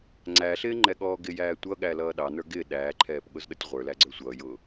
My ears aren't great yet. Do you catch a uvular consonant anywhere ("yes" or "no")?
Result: yes